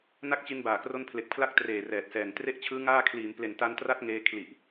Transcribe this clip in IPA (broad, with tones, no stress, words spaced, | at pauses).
na˦˥k̚t͡ɕi˧nbaː˨˩ kro˦˥npʰle˨˩k̚pʰla˦˥k̚ treː˨˩rɛː˨˩t̚sɛː˨˩n tre˦˥ʔt͡ɕʰɯː˦˥ ŋaː˥˩ kʰliː˩˦mple˨˩nta˧n tra˦˥t̚ŋeː˧ kʰli˨˩ʔ